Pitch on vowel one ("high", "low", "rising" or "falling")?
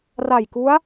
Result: low